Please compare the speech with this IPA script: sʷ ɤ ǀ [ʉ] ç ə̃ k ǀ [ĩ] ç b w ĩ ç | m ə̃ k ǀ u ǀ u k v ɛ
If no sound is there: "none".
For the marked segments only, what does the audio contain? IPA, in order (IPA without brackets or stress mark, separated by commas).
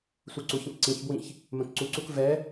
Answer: u, ĩ